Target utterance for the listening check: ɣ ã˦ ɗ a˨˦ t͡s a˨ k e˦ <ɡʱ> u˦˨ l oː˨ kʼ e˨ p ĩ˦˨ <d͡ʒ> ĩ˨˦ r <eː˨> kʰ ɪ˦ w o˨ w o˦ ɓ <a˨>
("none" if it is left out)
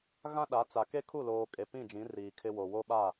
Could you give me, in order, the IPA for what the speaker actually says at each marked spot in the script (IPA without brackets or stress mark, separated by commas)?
kʰ, d͡ʒ, iː˨, a˦˨